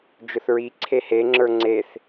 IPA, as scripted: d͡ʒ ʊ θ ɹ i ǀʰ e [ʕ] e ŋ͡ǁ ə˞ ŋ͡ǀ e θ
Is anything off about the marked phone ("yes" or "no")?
yes